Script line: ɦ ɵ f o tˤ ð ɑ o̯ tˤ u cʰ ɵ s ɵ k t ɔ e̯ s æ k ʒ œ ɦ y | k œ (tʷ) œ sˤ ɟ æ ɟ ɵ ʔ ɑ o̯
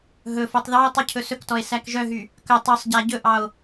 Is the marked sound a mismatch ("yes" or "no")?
yes